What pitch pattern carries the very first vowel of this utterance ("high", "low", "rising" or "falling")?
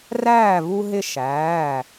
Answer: falling